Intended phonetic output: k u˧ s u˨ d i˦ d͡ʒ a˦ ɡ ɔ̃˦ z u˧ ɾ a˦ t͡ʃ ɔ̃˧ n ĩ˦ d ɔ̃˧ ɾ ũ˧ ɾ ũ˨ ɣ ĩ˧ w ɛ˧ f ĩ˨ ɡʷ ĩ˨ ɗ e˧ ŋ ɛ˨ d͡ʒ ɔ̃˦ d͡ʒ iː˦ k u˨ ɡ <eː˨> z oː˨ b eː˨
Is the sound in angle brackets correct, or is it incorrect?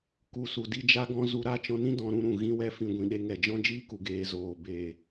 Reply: incorrect: eː˧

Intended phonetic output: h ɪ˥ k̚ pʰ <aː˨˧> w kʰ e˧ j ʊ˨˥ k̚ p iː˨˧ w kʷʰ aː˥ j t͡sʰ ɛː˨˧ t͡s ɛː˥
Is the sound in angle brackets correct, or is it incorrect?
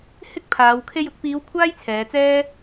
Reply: correct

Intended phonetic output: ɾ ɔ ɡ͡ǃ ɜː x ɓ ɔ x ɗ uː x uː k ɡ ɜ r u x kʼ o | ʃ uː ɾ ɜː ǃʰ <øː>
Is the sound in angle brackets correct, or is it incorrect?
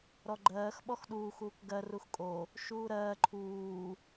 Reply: incorrect: uː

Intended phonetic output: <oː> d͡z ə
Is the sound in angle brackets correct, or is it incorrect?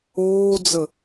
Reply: correct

